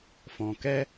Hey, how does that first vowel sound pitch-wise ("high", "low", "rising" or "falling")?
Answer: low